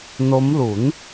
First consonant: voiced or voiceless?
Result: voiced